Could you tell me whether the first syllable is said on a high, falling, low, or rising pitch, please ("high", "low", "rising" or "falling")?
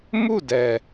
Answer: falling